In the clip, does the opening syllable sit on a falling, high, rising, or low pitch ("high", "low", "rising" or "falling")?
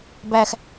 low